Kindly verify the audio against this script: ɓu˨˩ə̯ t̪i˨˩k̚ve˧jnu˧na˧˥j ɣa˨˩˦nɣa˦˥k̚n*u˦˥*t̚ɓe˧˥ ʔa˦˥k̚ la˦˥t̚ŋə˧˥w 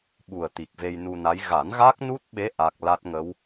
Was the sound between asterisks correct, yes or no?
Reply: yes